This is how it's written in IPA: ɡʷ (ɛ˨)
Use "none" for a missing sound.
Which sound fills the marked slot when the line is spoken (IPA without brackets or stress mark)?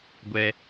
ɛ˦